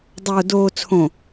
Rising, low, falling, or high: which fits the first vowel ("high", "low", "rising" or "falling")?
low